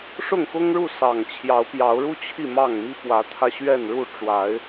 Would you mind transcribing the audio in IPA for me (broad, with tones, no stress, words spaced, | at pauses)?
ʂʊ˥˨ŋxʊ˦ŋɻu˥˨ sɑ˨˩ŋt͡ɕʰjɑ˨˦ʊ̯pjɑ˨˦ʊ̯ɻu˦ t͡ɕʰi˥˨mɑ˥˨ŋmi˦ pwä˨˦t̪ʰä˧ɕɥɛ˥˨nɻu˥˨ ʈ͡ʂwa˨˦ɪ̯